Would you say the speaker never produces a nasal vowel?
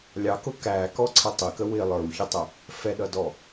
yes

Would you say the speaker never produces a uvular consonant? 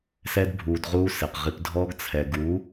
no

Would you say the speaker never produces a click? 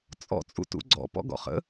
no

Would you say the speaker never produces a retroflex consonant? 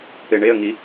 no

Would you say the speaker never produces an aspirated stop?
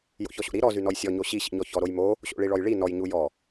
yes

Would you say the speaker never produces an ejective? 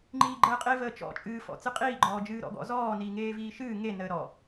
no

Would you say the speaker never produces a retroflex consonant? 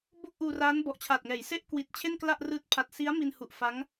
yes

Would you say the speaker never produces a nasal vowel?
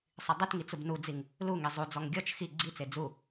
yes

